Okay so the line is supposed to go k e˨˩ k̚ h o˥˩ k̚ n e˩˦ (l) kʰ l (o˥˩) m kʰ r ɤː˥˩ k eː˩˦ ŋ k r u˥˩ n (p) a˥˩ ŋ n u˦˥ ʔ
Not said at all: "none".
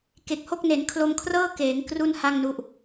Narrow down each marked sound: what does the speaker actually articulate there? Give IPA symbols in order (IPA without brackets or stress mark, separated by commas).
n, o˧, h